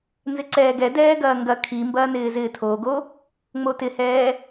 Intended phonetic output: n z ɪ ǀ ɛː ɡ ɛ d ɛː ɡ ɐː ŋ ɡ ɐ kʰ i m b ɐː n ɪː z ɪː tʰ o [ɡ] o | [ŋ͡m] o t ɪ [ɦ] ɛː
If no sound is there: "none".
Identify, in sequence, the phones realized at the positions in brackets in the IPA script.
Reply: ɡ, ŋ͡m, h

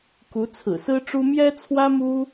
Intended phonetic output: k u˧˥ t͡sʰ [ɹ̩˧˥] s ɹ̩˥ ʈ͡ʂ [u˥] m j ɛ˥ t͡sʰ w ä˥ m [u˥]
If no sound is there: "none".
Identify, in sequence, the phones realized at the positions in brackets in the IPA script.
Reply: ɹ̩˨˩, u˥, u˥

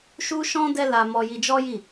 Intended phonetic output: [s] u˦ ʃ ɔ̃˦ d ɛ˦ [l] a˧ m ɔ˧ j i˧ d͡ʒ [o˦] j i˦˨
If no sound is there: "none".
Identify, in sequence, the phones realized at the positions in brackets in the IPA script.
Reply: ʃ, l, ɔ˦

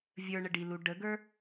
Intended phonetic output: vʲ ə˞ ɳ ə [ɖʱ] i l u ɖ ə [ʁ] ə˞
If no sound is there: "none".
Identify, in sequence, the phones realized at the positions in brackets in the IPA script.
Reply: ɖ, ɡ

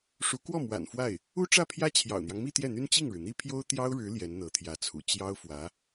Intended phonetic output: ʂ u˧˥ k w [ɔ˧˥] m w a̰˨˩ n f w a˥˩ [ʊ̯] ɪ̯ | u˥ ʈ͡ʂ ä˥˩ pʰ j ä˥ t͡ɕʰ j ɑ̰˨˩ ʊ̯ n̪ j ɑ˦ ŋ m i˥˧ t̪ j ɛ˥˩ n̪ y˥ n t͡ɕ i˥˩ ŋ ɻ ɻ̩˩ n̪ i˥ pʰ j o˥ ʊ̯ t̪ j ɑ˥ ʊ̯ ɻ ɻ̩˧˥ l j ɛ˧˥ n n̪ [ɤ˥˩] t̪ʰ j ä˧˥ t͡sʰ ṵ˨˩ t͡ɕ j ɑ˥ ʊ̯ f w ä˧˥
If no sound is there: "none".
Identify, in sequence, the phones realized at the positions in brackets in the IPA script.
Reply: ɔ˥˩, none, ɤ˧˥

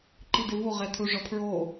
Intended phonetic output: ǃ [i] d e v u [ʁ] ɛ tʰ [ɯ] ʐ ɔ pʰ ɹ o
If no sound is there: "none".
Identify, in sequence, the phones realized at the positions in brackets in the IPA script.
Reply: i, ʁ, u

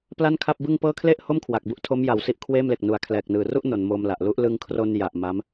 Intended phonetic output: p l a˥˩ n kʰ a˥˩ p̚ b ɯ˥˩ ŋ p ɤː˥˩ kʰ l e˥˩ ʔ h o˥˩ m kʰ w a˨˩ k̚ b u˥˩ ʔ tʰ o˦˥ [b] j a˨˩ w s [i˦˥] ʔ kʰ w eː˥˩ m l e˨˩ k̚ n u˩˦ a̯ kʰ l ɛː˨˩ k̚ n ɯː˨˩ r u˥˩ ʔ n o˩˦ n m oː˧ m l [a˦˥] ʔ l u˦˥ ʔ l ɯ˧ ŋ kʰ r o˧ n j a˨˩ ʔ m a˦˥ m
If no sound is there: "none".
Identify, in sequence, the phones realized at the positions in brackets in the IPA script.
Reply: m, i˦˥, a˨˩

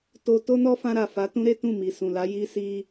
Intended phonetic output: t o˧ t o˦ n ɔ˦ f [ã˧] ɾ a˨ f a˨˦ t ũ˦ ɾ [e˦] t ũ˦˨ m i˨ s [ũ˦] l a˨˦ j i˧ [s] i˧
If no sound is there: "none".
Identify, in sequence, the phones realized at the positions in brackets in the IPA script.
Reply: ã˧, e˦, ũ˨, s

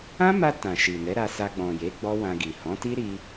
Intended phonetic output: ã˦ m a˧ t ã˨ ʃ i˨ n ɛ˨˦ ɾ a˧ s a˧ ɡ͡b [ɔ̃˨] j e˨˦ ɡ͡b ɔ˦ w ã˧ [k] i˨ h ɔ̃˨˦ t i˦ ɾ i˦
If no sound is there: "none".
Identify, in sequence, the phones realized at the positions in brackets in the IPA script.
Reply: ɔ̃˨, ɡ

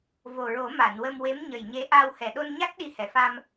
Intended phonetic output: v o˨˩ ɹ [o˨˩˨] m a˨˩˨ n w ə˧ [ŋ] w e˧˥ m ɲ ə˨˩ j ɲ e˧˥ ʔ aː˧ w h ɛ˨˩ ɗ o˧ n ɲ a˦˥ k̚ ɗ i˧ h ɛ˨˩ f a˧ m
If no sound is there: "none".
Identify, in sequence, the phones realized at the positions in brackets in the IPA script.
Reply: o˨˩˦, m

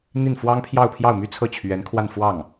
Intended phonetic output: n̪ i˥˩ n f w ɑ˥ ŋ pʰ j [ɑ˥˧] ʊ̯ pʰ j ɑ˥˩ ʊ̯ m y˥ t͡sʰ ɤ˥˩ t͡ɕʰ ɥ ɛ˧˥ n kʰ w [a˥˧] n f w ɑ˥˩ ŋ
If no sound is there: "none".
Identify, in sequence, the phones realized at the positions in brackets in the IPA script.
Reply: ɑ˥˧, a˥˧

